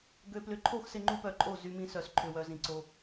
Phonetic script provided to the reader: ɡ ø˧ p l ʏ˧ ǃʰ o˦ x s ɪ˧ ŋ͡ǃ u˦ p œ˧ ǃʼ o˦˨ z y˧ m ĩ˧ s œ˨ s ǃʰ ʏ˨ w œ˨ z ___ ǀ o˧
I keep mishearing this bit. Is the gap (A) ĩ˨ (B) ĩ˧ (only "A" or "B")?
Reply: A